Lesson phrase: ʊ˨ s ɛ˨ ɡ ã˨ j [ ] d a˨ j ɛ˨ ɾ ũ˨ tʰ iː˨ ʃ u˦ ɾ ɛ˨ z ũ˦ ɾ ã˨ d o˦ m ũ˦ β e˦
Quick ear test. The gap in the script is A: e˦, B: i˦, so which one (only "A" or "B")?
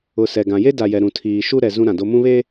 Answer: A